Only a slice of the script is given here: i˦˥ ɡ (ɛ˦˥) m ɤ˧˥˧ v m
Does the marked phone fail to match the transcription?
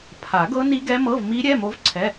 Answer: no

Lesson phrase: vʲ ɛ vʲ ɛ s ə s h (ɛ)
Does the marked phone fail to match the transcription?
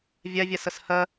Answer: yes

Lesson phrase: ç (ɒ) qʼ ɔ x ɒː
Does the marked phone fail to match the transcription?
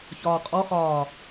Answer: yes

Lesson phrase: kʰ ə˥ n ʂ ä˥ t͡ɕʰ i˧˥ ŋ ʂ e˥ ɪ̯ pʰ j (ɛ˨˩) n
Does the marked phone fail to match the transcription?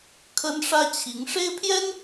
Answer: yes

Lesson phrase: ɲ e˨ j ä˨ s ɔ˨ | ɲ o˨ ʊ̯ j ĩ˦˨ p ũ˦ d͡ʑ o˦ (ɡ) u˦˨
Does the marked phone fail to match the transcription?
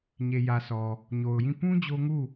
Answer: yes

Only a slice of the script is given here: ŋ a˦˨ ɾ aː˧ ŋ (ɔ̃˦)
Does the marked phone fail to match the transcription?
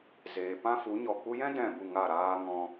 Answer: yes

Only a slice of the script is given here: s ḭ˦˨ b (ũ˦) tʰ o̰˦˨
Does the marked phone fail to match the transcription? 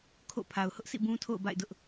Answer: no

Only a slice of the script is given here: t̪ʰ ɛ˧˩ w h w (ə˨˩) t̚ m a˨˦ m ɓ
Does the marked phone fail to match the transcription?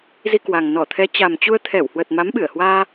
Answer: no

